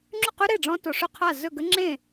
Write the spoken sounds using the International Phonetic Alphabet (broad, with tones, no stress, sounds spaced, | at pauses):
ŋ͡ǁ ʉ˥˩ q ʉ˦˥ ɾ e˥˩ ɖ͡ʐ ɔ̃˦˥ t o˨ ʂ ɵ˥˩ qʰ a˥˩ z ɵ˥˩ ɡ ə˦˥ ŋ͡ǁ ẽ˥˩